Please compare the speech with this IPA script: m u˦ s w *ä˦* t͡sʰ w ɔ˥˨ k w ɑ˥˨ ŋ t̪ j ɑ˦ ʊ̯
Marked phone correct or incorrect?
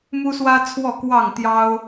correct